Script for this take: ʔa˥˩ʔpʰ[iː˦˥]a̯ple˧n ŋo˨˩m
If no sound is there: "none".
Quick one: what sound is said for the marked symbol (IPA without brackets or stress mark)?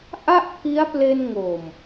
i˦˥